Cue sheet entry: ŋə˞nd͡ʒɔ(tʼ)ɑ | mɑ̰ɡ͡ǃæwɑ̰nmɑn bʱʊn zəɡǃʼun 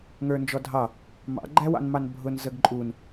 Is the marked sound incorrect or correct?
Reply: incorrect